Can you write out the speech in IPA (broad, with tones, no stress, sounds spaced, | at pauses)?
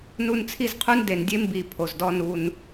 n u˨ n t͡sʰ i˦˨ z qʰ u˦ n d e˨ n dʲ e˦ m b i˨ pʰ o˨ z d ɔ˦ n u˦ n